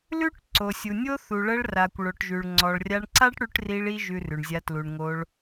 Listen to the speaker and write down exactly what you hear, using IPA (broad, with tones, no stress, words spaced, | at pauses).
lʉ˦ʈ ǀo˨sʲu˨nʲo˦ θu˨ɭə˧ɭra˨kʷ ɭo˨ʈʒʉ˨ɭ ŋ͡ǀɔ˨ɭrʲa˧ɳ ǀa˦ʈɽʉ˧ʈ ri˧ɭi˧ ʒʉ˧rʉ˨ɳzʲa˧ tlu˨ɳŋo˧ɭ